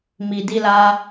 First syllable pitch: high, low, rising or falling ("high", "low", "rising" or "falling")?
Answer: low